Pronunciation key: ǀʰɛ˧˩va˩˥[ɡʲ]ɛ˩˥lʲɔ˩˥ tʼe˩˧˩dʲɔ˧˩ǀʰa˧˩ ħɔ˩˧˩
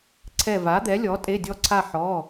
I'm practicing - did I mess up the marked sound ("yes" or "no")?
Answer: yes